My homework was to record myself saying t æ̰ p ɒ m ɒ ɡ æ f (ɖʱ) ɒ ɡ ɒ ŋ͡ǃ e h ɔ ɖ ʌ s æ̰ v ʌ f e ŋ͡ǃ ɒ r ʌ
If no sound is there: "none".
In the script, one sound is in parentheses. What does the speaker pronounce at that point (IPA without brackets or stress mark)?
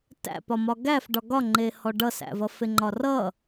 ɖ